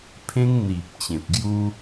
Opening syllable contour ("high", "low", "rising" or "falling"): high